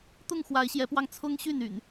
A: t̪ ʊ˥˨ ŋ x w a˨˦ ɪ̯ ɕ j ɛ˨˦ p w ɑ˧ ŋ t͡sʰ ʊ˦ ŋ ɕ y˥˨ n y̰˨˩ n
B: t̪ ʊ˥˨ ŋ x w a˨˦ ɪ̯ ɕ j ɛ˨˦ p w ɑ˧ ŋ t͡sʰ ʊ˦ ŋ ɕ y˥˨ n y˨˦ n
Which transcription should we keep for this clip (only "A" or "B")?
A